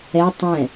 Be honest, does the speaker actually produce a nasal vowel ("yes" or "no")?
yes